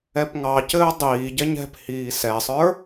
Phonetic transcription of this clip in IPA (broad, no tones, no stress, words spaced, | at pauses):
ɛpŋɑcɘː dˤiːɟɛɲ ɛ̤p hiːsɛsˤə˞